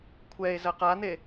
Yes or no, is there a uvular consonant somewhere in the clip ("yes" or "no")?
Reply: yes